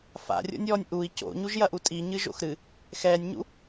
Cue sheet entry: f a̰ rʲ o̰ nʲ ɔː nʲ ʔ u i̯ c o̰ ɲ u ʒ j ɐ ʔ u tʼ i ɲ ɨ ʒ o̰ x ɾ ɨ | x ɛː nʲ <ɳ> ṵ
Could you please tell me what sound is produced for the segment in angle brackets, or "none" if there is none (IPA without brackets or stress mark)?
ɲ